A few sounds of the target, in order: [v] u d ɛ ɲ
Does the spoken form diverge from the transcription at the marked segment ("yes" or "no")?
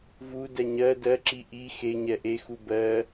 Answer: no